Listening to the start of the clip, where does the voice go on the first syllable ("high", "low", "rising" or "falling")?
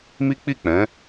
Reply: high